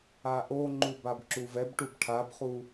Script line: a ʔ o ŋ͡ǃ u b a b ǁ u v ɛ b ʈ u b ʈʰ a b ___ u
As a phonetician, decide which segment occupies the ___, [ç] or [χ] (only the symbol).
χ